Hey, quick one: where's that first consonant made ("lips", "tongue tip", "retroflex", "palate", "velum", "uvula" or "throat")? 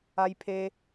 palate